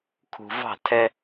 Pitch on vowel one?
low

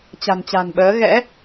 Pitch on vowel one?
low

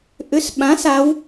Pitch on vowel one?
rising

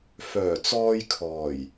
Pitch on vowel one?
low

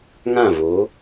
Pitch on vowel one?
falling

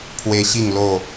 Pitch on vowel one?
high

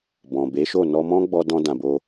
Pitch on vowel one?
low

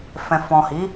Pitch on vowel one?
low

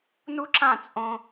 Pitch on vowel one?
high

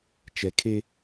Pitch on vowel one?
low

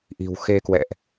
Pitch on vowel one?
low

